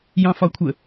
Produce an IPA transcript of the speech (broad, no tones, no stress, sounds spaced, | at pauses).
j ɑ̃ f ɒ kʷʰ ə